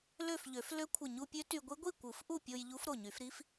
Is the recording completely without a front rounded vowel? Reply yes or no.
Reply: no